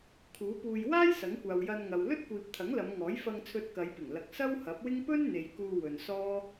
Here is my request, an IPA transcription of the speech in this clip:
kʰuː˨˥puː˧j waː˥j sɐ˨˥ŋkʷaː˨wjɐ˧nŋɐ˨w lɵ˥t̚kʷiː˨p̚t̪ʰɐ˨˥ŋ lɐ˨˧mŋɔː˨˥jfɐ˧ŋ t͡sʰɵ˧t̚kɐ˨˧jpɪ˨˩ŋ lɐ˨˥k̚sɐ˥whɐ˨˥p̚wɪ˥ŋ pɵ˥nn̪e˨j kuː˧wɵ˨n sɔː˥

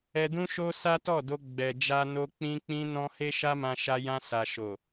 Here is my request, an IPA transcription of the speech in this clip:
ɛ˧dũ˦ʃo˦ sa˦tɔ˦˨do˧ ɡ͡bɛ˨ d͡ʒa˧no˧ k͡pĩ˧ k͡pĩ˧nɔ̃˧ he˦ʃa˦mã˧ʃa˧ jã˧sa˨ ʃo˨

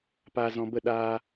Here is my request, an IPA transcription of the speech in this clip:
paː˨zɔ̃˨bə˦˨ ɗaː˧

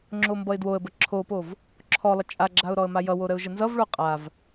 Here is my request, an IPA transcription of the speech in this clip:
ŋ͡ǁombʌɪ̯dwoə̯bə ǁʰopov | ǁʰɔlˠə t͡ʃʼaɡ͡ǁaʊ̯ ɾɔə̯majʌwo ɾəʊ̯ʒənzʌvɭo qʼav

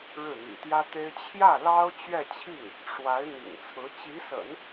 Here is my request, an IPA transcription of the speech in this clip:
ɻɻ̩˥˩n̪ḭ˨˩t̪jä˥t̪e˥ɪ̯ t͡ɕʰjä˥˩ lɑ˥ʊ̯t͡ɕɥɛ˥˧t͡ɕʰi˥˩ŋ | ʂwa˧˥ɪ̯n̪ḭ˨˩ŋt͡sʰɹ̩˧˥ t͡ɕi˧˥sə̰˨˩˦n

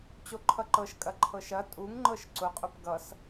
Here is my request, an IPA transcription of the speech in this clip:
t͡ɕoǃʰʌǃɤʃkʼɐ ǃʰɤʃɐ tʼuŋŋ͡ǃɤʃ ǀʊqʼʊp ɡʌs

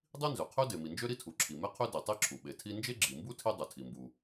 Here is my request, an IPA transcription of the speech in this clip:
dˤi˥nzø˩qʰø˥ de˩mi˩nd͡ʒø˥ ɾi˥tʰu˩ǁʰi˩ me˥qʰø˥ di˩tˤi˥ǁʰu˩ ɓe˩tʰi˥ nd͡ʒe˥ɡ͡ǁi˩mbu˥ tʰi˥ dˤø˩tʰi˩mbu˩

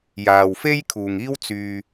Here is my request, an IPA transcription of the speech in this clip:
jaː˨wfe˥j kʰuː˨ŋiː˥w t͡syː˧

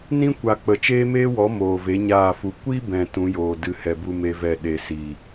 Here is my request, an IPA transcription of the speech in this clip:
nĩ˦kʷa˨k͡pə˨ t͡ʃeː˦meː˦wɔ˨˦ moː˨ve˨˦ɲaː˦˨fu˧ kʷi˦bɛ̃˨ tũ˨˦joː˨ dɨ˧ hɛ˨bu˧ me˦vɛ˦˨ ɗe˧ siː˨

